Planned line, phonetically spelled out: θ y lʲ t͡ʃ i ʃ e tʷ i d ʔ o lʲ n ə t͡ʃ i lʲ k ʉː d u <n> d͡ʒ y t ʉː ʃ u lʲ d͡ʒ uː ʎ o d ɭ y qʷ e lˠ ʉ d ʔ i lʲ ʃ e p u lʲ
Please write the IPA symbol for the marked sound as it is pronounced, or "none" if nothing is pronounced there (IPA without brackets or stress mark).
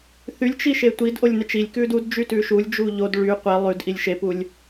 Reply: d